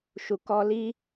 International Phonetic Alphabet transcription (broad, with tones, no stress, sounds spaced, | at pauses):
ʃ u˨ k ɔ˧ l i˦